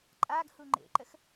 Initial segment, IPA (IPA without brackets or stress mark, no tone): ǃʼ